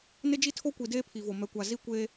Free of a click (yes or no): yes